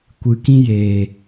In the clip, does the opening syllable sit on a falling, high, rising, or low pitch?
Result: low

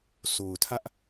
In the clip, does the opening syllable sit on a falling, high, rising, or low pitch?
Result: low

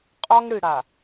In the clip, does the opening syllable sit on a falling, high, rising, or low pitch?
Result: high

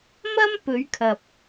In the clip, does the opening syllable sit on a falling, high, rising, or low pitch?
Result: high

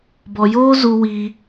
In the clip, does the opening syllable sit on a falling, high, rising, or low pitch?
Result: low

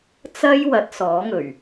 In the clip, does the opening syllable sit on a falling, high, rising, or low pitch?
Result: high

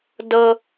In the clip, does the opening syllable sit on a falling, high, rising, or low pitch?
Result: high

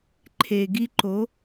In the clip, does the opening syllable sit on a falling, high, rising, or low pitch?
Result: low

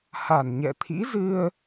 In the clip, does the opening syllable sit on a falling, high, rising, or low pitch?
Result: low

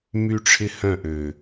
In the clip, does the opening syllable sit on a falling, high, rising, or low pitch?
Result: high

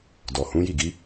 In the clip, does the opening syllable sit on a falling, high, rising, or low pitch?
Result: low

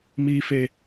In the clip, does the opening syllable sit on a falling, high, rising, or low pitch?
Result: high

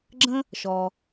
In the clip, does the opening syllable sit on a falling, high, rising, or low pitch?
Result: high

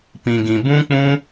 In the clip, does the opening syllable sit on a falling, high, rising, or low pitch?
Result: low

